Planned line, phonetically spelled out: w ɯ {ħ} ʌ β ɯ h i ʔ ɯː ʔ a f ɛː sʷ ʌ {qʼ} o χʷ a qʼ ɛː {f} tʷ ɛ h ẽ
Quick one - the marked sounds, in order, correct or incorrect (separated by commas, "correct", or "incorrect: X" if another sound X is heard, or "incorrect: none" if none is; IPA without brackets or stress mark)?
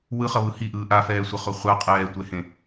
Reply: incorrect: χ, incorrect: χ, incorrect: none